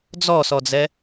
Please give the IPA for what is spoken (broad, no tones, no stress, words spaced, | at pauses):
d͡zɔsɔd͡zɛ